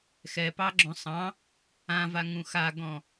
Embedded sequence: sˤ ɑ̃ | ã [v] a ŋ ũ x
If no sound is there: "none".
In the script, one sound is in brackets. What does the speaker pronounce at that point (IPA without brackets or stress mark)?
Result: v